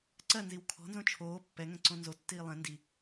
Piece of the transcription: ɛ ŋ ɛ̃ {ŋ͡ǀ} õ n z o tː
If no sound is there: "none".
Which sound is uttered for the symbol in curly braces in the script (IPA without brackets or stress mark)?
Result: ǀ